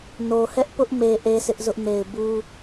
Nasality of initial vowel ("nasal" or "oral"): oral